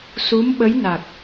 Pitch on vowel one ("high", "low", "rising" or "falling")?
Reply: rising